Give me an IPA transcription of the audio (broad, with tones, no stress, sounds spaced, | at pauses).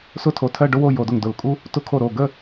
s ʊ˥˧ tʰ o˧˩ tʰ ɜ˥˧ ɖ ʊ˥ w o˥˧ j o˧˩˧ d ʊ˧˩ ŋ d ʊ˧˩˧ l kʼ u˥ | t ʊ˥ kʰ o˥˩ ɾ o˥˩ ɡ ə˥˧